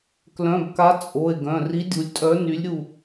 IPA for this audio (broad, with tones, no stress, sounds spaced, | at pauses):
k l œ̃˩˧˩ b k a˨˥ t͡sʼ o˩˧˩ e̯ ɡ œ̃˩˧˩ r i˨˥ dʲ u˩˧ lʲ tʼ œ˨˥ n y˨˥ lʲ ɾʲ u˦˨